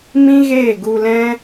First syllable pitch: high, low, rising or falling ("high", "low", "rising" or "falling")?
high